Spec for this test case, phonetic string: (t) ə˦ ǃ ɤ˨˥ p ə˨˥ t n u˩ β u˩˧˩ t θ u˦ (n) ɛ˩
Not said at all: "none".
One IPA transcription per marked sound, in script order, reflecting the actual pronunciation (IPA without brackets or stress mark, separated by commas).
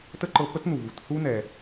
t, n